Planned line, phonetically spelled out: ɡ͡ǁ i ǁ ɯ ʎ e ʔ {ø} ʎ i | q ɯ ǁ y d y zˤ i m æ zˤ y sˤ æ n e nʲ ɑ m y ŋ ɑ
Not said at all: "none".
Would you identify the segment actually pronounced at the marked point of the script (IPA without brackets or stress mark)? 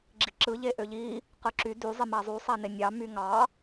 ø